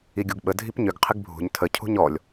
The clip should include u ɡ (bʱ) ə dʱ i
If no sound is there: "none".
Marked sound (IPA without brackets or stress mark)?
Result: ɓ